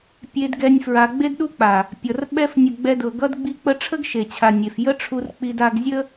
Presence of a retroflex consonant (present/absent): present